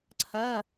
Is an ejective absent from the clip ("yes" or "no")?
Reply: yes